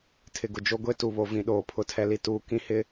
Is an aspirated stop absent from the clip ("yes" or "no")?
no